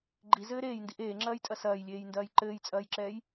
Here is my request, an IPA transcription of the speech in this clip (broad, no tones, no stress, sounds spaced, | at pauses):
ɡ͡ǃ i z ɘː ɾ eː j n d i ʔ eː ŋ͡ǁ ɐː j tʼ ɐ s ɐː j lʲ eː j n d ɐː j ǃ ɘː j t͡sʼ ɐː j ǁ ɛː j